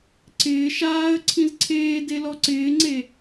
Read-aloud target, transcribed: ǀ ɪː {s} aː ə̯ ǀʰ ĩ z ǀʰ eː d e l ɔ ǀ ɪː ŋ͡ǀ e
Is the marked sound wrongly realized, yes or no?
yes